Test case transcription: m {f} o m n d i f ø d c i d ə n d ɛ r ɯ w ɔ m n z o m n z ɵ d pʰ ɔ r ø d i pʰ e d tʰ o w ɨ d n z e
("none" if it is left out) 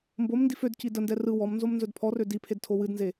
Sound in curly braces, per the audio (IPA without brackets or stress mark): b